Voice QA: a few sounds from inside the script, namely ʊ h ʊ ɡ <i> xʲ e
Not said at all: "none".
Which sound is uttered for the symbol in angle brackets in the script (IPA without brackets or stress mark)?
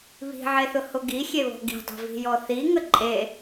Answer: i